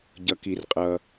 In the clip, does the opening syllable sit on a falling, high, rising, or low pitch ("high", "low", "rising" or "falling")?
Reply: low